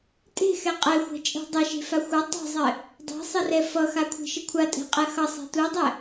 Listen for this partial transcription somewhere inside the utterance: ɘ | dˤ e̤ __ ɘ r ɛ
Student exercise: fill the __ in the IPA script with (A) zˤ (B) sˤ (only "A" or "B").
B